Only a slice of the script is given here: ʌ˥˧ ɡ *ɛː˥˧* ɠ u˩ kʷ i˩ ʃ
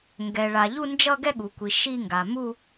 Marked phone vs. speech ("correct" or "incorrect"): incorrect